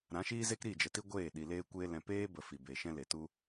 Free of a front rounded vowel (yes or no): yes